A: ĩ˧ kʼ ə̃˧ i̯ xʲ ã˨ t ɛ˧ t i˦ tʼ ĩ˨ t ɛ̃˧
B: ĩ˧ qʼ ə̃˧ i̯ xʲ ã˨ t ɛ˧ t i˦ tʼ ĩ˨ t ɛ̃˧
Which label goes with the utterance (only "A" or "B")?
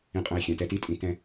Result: B